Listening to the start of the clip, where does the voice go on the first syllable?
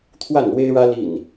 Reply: falling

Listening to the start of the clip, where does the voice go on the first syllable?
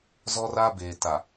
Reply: high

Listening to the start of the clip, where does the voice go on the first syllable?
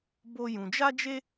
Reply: high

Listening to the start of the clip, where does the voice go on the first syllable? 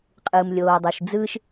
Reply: low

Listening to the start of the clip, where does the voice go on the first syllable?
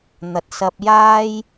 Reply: rising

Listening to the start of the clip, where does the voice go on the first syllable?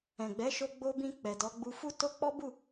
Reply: low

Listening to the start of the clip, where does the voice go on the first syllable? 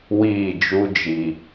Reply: falling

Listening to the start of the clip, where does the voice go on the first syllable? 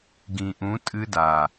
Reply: low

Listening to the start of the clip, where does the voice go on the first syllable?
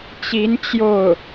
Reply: rising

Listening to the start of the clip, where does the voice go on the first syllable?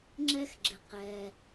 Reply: high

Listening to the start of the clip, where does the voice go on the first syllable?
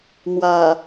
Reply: low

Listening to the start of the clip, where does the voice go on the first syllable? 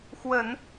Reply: low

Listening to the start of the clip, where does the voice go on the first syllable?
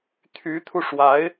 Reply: rising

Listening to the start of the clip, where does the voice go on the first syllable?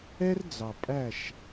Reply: high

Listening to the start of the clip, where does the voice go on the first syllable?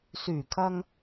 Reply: low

